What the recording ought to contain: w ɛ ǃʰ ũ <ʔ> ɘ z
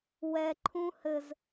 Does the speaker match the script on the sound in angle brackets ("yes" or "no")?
no